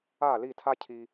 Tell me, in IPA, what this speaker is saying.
a˦˨ l i˦˨ tʰ a˦ cʰ i˧

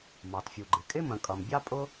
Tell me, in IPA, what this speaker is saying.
m ɑ˩ t fʲ u˩ ɡ͡ǃ ɪ˩ kʼ ɪ˥ m ə̃˩ kʼ ʌ˩ m bʲ ɑ˥ pʼ ʊ˥

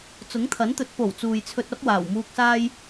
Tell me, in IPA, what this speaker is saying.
t͡s ʊ˨˥ ŋ t̪ʰ ɐ˨˥ n t̪ ɵ˨˥ t̚ p o˨˩ w t͡s uː˨ j t͡sʰ ɵ˧ t̚ ɐ˥ p̚ w aː˨˩ w m uː˧ k̚ s aː˥ j

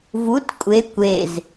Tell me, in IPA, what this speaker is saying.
v u t kʷʼ e kʷ e z

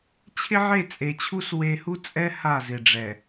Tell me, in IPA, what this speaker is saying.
t͡ɕʰ ɪ˦ ʕ e˦˨ t͡sʼ e˨ t͡ɕʰ u˦ s w e˦ h u˦ t͡sʼ ɛ˦ h a˦˨ z ɪ˨ ɖ͡ʐ ɛ˨

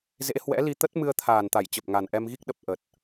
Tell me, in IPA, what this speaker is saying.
z ḛ˧˥ h w ɛ̰˧˥ l i˧ t̪ ə˦˥ t̚ m ɨ˧ ə̯ t̪ʰ aː˨˩ n t̪ a˧˩ j t͡ɕ ə˨˩ p̚ ŋ a˨˩ n ʔ ɛ˧ m ɣ i˦˥ k̚ ɗ ə˨˩ p̚ ʔ ə˨˩ t̚

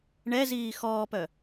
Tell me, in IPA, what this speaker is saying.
ɳ ɛ z iː x ɔː p œ

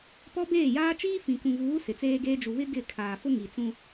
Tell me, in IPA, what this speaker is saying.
p ɔ˦ b eː˦˨ j aː˦ t͡ʃ iː˦ f ĩ˨ k ũ˨ v uː˨˦ s ɪ˨ t͡s eː˦ ɡ eː˦ d͡ʒ u˨ β ɪ˦ ɡ ɪ˦˨ kʰ aː˨ f ʊ˦ ŋ i˨ t͡s ũ˦

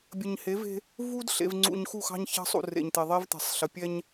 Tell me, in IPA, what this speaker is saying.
bʲ ə˨ ɲ h e˨˦ v e̤˦ | v u˦ d ɬ ḛ˨ v ŋ͡ǀ ṵ˨ ɲ x u˦˨ x ɑ̤˦ ɲ ç ɑ̤˦ sˤ ṵ˨ r ḛ˨ ɲ t̪ e˨ ðˤ e˦ v t̪ e̤˨ sˤ ɬ ə˨ pʲ ɛ˦ ɲ

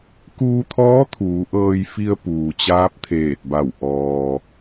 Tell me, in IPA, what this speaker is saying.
k uː˧ t̪ʰ ɔː˧˥ t̪ʰ uː˩˧ ʔ ɤː˧ j f i˧ ə̯ p uː˩ t͡ɕ aː˧˥ p̚ t̪ʰ eː˧˩ t̚ b a˧˩ w ʔ ɔː˩

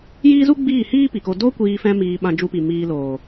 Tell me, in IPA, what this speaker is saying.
j iː˦ z u˦ ɡ͡b iː˦˨ h iː˦ p i˨ k o˧ d o˦ kʷ iː˧ f ɛ̃˦ m iː˧ ɓ ã˧ d͡ʒ u˧ p i˨ m iː˧ l oː˨

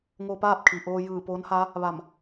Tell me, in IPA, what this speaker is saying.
ŋ oː˧ p aː˥˨ p̚ kʰ i˩ ʔ oː˧ j ɯː˧˩ p o˧˥ n h a˧˥ | ʋ a˧˩ m

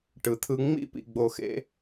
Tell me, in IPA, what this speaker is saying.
ʈ ɯ˨ t̪ʰ ɯ˧ ŋ͡m ḭ˦˨ p ḭ˨ ɡ͡b o˨ x ḛ˧

